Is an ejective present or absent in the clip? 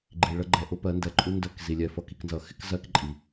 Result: present